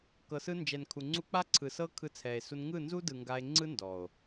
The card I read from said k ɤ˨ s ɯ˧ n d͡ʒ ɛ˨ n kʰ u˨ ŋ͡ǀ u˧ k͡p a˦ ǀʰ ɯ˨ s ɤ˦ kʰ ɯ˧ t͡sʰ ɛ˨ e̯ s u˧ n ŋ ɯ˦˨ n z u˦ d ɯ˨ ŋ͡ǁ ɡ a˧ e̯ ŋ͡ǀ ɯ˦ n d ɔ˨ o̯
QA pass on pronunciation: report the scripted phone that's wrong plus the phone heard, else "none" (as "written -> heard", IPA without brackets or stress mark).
ŋ͡ǁ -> ŋ